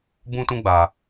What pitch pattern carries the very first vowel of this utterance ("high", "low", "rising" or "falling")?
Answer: high